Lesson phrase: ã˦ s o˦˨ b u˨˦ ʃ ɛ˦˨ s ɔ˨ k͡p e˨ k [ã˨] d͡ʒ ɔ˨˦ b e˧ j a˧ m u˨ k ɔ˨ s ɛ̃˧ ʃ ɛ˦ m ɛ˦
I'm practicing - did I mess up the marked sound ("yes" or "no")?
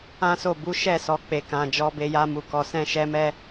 no